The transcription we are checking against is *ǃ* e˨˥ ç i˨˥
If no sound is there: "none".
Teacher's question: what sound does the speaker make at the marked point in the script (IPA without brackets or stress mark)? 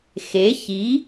x